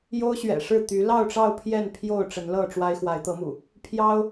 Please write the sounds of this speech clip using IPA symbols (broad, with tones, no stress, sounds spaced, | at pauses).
j o˦ ʊ̯ ɕ ɥ ɛ̰˨˩ ʂ ɻ̩˥˨ t̪ y˨˦ l ɑ˥˨ ʊ̯ ʈ͡ʂ ɑ˥˨ ʊ̯ pʰ j ɛ˥˨ n pʰ j o˥˨ ʊ̯ ʈ͡ʂ ə˨˦ n l ɤ˥˨ ʈ͡ʂ w a˦ ɪ̯ x w a˨˦ ɪ̯ t̪ ɤ˨˦ m ṵ˨˩ | pʰ j ɑ˦ ʊ̯